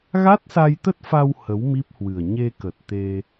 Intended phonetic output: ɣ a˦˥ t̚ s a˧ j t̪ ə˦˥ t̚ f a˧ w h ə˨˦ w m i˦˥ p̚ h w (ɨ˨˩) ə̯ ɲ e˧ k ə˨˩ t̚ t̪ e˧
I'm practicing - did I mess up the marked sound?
no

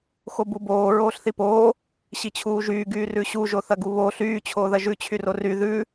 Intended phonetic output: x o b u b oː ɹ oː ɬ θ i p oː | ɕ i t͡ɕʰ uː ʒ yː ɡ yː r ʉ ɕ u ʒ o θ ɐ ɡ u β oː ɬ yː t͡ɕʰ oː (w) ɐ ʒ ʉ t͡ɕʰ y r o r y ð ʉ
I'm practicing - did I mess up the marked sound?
yes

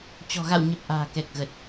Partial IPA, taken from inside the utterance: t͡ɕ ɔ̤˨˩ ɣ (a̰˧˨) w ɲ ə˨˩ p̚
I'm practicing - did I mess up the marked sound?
no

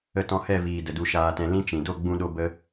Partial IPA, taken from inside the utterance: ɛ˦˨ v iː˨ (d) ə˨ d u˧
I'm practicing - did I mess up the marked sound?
no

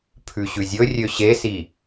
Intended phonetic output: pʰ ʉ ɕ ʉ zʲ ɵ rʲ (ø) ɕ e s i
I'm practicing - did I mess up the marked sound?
no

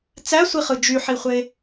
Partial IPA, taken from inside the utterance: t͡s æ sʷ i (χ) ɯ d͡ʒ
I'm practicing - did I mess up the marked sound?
no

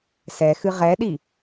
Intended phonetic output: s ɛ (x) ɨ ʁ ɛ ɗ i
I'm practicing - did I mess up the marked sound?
no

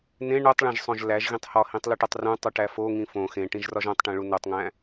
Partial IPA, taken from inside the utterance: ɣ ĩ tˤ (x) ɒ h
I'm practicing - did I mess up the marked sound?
yes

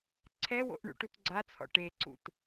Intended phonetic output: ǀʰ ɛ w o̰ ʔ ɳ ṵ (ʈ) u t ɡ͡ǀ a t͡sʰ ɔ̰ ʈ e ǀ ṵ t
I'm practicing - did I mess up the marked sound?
no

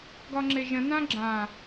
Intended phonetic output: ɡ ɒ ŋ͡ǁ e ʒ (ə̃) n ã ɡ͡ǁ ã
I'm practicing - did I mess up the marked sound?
no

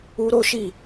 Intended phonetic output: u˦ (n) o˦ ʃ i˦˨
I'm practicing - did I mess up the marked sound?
yes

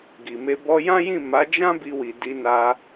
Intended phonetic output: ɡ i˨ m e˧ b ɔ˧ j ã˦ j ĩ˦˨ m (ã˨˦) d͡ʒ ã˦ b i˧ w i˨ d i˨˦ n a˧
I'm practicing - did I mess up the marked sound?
yes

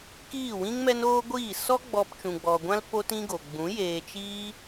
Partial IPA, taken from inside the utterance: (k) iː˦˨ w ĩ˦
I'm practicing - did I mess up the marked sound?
no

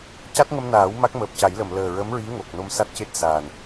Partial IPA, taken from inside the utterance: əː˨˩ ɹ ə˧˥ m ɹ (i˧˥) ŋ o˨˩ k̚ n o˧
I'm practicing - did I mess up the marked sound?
no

